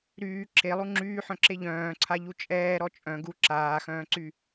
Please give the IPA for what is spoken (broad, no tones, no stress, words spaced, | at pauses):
ɾyː ǁʰelˠu ŋ͡ǁyːħœ̃ǁe ʎœ̃ːǀʰaʎu t͡ʃʼɛːɾɔ t͡ʃʼœ̃ ɡu ǁaːxœ̃ːǀy